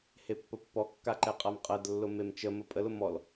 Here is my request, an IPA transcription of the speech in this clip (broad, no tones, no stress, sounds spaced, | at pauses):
h e pː ə pː ɔ kː a ǃ ɛ qʼ a m qʼ ɜ d lː ʊ m e m t͡ʃ ə m ə pʼ ə l ʊ m ɔ l